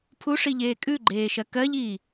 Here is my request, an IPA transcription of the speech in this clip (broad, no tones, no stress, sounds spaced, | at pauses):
pʰ u ʂ i ʎ eː kʼ ʉ ɡ͡ǃ eː ʃ ɜ k ɜ ʎ iː